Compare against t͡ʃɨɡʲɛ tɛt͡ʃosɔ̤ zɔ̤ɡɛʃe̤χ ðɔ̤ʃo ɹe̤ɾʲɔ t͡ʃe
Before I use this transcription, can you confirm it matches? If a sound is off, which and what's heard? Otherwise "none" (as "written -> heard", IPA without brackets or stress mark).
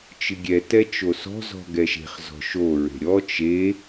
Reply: ð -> z